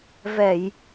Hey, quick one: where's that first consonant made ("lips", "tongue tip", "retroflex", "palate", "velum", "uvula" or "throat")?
lips